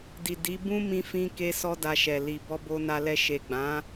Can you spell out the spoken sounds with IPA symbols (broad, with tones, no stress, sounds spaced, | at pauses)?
d i˨ d i˨˦ b ũ˦ m ĩ˧ f ĩ˧ k e˦ s ɔ˦ d a˧ ʃ ɛ˨ l i˨ b ɔ˧ b o˧ n a˧ l ɛ˧ ʃ e˨ ɡ͡b ã˨˦